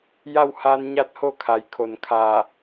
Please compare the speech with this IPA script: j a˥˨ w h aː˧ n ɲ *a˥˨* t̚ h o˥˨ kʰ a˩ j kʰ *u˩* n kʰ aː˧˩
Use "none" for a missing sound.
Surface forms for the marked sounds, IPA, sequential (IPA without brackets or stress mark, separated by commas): a˥˨, o˩